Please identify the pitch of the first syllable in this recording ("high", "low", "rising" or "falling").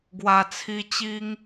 low